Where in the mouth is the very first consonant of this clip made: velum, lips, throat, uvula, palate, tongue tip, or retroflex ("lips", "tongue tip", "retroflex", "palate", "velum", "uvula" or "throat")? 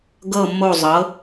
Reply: velum